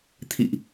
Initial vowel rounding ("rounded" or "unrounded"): unrounded